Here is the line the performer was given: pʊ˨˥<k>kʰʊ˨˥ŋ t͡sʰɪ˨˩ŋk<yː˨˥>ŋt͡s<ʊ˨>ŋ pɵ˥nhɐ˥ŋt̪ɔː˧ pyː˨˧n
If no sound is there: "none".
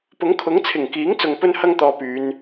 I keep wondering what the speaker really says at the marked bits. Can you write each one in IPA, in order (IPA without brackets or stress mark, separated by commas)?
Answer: ŋ, iː˨˥, ʊ˨